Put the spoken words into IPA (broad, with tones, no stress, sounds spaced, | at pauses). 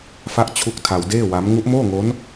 f a˦˥ ʔ t͡ɕʰ u˦˥ k̚ tʰ a˧ w d eː˥˩ w a˦˥ m ŋ u˦˥ ʔ m oː˥˩ ŋ o˦˥ n